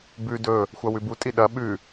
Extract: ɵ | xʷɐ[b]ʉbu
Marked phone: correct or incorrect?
incorrect